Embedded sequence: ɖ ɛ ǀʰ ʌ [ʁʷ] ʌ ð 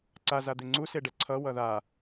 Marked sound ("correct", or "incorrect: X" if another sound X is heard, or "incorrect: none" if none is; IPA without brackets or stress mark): incorrect: w